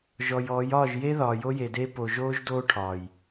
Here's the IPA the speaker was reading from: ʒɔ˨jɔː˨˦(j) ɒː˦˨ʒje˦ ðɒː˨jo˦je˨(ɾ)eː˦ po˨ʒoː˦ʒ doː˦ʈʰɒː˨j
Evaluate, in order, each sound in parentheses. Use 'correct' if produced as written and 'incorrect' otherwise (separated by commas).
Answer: correct, incorrect